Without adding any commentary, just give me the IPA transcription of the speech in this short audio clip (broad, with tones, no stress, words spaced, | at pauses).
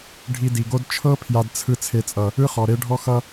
ɖʱi˧di˨ɡo˦d t͡ʃʰɤ˦ pʰja˧dt͡sʰɯ˧ t͡sʰe˨t͡sʼʌ˨ | ɯ˦χɔ˨ɾe˦ɖʱɔ˦ xʌ˦